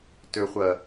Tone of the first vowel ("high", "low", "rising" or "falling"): low